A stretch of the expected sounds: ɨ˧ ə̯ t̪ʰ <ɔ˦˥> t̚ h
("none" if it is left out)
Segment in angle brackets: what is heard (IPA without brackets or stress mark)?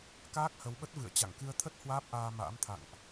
ə˦˥